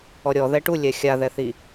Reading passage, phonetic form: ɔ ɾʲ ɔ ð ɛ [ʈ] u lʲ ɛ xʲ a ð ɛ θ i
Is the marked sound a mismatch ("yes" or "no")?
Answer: no